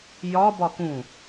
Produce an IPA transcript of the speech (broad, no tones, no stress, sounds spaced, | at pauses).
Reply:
j ɒ b ɒ k ũ